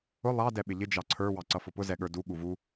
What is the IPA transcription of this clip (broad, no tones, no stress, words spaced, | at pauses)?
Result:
ʊ lˠɑ dɛɓɪʎɪ d͡ʒɑǀʰə˞ wɑǀʌfʊpʊ zɛɠə˞du ɠuvu